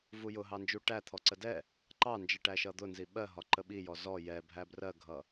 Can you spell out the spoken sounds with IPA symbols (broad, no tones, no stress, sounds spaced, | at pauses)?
v u j ʊ ɦ ɑ n d͡ʒ u ʈ æ t̪ʰ ɔ ǀ ə d ɛ | ǃ ɑ n d͡ʒ ɜ ʈ æ ʃ ʌ d̪ ʊ n z i ɓ ɜ ɦ ɒ ǃ ə ɓ i j ɔ z ɔ j ɛ bʱ æ b r ɜ ɡʱ ʌ